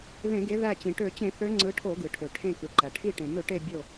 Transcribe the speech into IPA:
ðẽ˧˩˧ɡe˨˦ ðæ˧˩t͡ɕĩ˩ ʈø˧˩˧t͡ɕẽ˧˩˧θø˨˦ ŋ͡ǀɯ˨˦ʈʰo˧˩˧ɡɯ˩ʈʰø˩ ʈʰẽ˧˩kɯ˩ǃæ˩ ʈʰi˧˩ʈẽ˩mø˧˩˧ʈe˧˩ bʲo˧˩

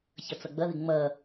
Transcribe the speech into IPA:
çʌt͡sʌɡ͡bʌðɪ ŋ͡mʌ

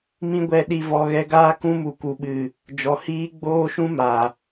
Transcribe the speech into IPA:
mĩ˦ɡʷɛ˧ ɗi˧vɔ˧ɣɛ˧ɡaː˦ kũ˦mu˨ku˨ɓɨ˨ | d͡ʒɔ˨hiː˦ ɡ͡boː˦ʃũ˦ ma˨

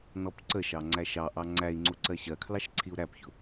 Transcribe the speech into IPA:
nɔpǀəʃɑ ŋ͡ǀæʃɑʔɑ ŋ͡ǀæi̯ŋ͡ǀu ǀɜɕɜkʰlɑʃ ǀʰiu̯ɾæpçʊ

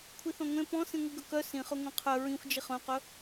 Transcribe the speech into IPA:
kʷʰiθɔ̃ŋʷẽ pɔ̃ sĩŋʷiɡɵkœ sĩχɵ ŋʷẽqʰœ ɹĩxʷd͡ʒiχ œ̃qɵ

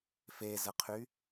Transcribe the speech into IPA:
fezəqʰy

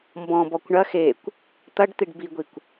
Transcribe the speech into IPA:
mbɔ̃ bɔkʷɳɐ xekʷ | t̪ɐɖt̪iɖ biɡʷikʷ

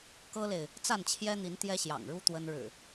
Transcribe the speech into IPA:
kɤ˦le˨ɪ̯ | t͡sa˥˨nt͡ɕʰjɛ˦n̪i˨˦n t̪jɛ˦ɕjɑ̰˨˩ŋɻu˦ t̪wə˦n ɻɻ̩˨˩

